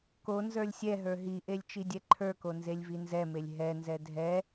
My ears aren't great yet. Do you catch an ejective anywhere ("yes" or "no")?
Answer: no